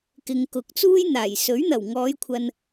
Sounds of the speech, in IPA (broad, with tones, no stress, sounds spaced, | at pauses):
k ɪ˨ ŋ k ʊ˨˥ k̚ t͡s uː˥ j n̪ aː˨˩ j s ɵ˨˥ ɥ n̪ ɐ˨˩ w ŋ ɔː˨˧ j kʷʰ ɐ˨ n